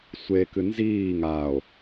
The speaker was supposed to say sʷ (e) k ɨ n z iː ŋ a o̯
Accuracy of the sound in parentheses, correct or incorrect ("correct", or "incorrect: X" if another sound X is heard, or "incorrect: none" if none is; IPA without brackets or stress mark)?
correct